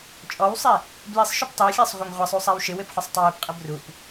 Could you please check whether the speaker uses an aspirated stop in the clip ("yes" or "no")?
no